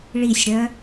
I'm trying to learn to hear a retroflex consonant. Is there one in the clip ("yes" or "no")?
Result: yes